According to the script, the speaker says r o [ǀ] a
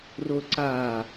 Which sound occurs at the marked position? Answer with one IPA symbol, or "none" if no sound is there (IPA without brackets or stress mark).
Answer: ǀ